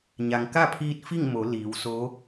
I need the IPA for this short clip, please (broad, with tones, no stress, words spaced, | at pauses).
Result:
ɲa˩ŋka˥˨pʰiː˧t̚ fi˥˨ŋmo˩˧ liː˩˧wso˧˥